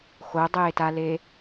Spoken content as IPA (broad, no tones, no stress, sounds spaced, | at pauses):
x o dˤ eː t a l e